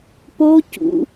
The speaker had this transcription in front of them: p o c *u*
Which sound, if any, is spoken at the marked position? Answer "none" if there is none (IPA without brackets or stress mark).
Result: ṵ